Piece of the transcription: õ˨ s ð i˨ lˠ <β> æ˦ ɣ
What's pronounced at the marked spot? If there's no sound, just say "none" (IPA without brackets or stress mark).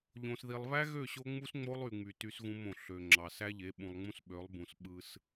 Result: β